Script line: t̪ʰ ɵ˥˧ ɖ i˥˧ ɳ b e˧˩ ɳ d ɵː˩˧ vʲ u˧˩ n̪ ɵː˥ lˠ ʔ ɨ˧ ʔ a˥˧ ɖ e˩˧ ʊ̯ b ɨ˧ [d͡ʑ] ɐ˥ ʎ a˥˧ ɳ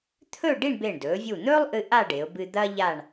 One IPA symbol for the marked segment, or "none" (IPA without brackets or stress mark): d̪